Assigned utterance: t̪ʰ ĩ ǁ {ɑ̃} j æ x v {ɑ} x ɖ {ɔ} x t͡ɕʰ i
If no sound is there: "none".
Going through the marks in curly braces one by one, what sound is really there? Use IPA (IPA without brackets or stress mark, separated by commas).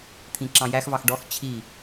ɑ̃, ɑ, ɔ